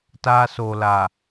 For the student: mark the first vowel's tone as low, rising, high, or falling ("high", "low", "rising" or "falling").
high